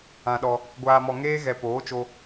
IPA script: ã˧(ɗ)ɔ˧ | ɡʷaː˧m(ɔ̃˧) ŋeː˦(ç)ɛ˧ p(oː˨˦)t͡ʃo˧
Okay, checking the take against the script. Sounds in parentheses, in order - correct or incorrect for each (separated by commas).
correct, incorrect, incorrect, correct